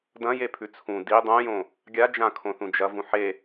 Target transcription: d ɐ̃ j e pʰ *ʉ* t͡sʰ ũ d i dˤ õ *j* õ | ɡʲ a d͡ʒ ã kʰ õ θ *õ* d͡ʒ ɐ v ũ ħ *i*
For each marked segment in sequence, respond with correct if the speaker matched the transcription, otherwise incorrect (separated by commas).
correct, correct, incorrect, incorrect